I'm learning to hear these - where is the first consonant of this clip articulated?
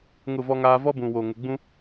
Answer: velum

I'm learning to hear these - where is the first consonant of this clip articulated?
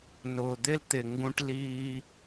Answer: tongue tip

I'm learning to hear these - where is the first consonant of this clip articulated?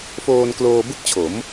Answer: lips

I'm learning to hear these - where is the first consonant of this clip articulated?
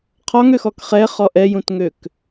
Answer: uvula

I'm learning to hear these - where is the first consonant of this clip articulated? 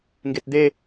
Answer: velum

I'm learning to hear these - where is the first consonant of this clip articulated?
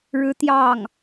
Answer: retroflex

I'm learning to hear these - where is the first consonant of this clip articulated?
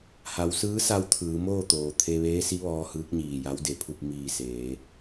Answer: throat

